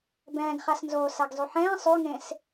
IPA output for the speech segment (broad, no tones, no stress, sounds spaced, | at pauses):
b ɛ̃ː ɡ χ a s n z oː s a ɡ zˤ y ħ ɛ̃ː sˤ y ŋ ẽ s